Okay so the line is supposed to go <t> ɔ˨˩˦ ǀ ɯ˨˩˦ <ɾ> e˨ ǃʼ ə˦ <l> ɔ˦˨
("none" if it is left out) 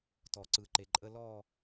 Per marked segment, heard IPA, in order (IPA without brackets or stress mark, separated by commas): t, ǃ, l